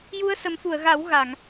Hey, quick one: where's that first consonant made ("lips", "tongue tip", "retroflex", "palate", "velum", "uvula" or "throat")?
palate